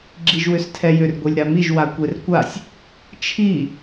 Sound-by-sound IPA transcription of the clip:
ɡ͡ǁiʒwʏstʰɛjʏr ɡʷelʲɾamiʒ wakʷerkʷasʲ | t͡ʃʰi

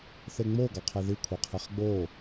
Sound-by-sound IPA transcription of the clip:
θeŋ͡mo ɡɑqʰeði kʷʰɛqʰeχɡ͡bo

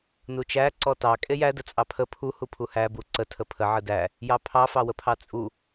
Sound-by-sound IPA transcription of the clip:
nut͡ʃæ ǀɔtɑ kʼejæ dət͡sʼɑpʰə pʰu hupʰuhæ buǀə tʰəpʰə ʕədæ | jɑpʰɑ fɑwəpʰɑt͡sʼu

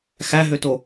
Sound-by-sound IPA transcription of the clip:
xæɦøto

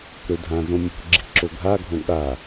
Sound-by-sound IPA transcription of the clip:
ɾødʱãzõ mʲo̤ ɡ͡ǁi̤ǁoɡʱaɡʱõ ɠa

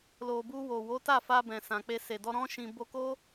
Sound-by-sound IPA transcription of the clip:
lo˨bu˧wo˨wo˨˦ ta˦˨fa˧ bɛ̃˨sã˨k͡pe˧ se˨dɔ˧ ɾɔ̃˦ʃĩ˧ bo˧ko˦

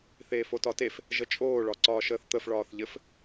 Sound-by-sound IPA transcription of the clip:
θeːfotɒtef | ʒət͡ʃʼoː ɭɒǀɒːʃəːθt̪əf ɭɒːθʎɘf

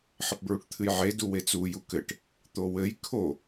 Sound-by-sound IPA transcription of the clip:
ħɘpbɹuʈt̪ʰɨjʕe duwet͡su jukɘʈ | t̪owɘj kʰo

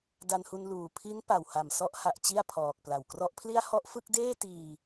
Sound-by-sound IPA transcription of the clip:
da˧nhu˧nluː˨˩ pʰi˦˥npa˨˩wha˨˩m sɔ˦˥ʔha˨˩ʔ t͡ɕi˥˩a̯pʰɔː˨˩k̚ pla˨˩wkrɔ˦˥ʔpʰli˥˩a̯ hɔ˥˩ʔfɯ˥˩k̚deː˥˩tiː˧

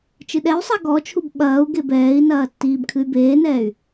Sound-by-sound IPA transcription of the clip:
t͡ʃɨɗɛy̯sˤa ɡɔt͡ʃʰub ɓɐːu̯ ɡebɛːi̯nɐː tːiːbkʰɨy̯beːnɛːy̯

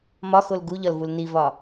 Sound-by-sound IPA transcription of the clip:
mɒxol ɡuʎɒlvul nivɒ

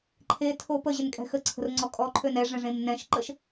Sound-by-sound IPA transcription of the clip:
ǃʰetʰo pəʑɪnkʼɛ̤ xəǀʰə̤rŋ͡ǀɔ kʼɔǃʰøn ɛʐɛ̃ʐẽm nɛ̃ʃǃəʃ

